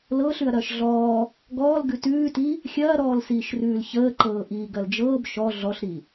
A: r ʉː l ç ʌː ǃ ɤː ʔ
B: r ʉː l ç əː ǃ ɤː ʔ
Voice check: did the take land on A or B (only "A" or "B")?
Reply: B